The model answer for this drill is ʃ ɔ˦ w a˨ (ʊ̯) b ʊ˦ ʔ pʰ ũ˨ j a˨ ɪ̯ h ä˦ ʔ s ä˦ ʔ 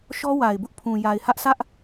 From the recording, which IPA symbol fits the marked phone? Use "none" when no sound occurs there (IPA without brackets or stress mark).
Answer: ɪ̯